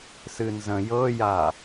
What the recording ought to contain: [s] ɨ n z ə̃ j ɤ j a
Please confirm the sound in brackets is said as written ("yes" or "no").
yes